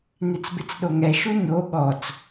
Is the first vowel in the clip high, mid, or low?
high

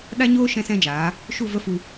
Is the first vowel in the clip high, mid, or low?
low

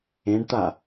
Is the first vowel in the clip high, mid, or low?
mid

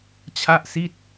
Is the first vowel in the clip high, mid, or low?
low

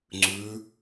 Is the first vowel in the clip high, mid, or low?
high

